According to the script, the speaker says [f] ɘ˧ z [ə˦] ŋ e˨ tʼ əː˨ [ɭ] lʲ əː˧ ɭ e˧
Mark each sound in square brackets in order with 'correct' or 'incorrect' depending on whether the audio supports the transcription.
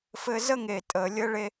correct, correct, incorrect: none

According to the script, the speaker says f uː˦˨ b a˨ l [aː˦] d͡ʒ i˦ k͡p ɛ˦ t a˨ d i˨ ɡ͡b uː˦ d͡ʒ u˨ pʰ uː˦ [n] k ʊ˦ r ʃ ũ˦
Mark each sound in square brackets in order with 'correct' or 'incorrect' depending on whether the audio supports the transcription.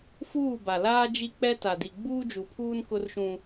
correct, correct

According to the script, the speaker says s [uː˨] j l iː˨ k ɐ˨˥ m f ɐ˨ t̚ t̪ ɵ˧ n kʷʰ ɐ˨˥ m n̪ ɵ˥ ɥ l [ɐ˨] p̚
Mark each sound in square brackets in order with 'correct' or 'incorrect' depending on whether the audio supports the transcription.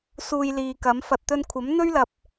incorrect: uː˧, correct

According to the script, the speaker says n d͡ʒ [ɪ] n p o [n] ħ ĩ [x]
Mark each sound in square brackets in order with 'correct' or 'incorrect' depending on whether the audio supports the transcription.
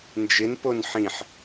correct, correct, incorrect: ħ

